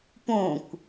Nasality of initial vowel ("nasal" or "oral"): nasal